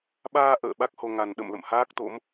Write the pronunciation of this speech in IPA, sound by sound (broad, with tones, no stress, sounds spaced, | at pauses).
ɓ aː˧ ʔ ə̰ː˧˨ ɓ a˦˥ k̚ h o˧ ŋ a˨˩ n ɗ ə̰˧˨ m l ə̰˧˨ m h aː˦˥ k̚ t̪ o̰˧˥ m